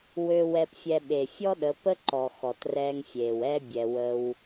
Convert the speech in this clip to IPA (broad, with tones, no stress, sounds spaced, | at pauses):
w ø˧ w ɛ˧ p fʲ ɛ˧ ɓ e˨ fʲ ɔ˦ ɗ ə˨˦ p ə˦ ǃ ɔ˨ x ɔ˨ t r ɛː˧ ŋ fʲ eː˨ w ɛ˦ bʲ ɛ˧ w ə˦ w